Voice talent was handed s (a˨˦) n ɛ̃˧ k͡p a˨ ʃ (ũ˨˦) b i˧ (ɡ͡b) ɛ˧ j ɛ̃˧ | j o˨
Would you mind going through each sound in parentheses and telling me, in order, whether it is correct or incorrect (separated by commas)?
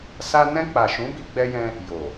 incorrect, correct, correct